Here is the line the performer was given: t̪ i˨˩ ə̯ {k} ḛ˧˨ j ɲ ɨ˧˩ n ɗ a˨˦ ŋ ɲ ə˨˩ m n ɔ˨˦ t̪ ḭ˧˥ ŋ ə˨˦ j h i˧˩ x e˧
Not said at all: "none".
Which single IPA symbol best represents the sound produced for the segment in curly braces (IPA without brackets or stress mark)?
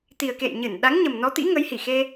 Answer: k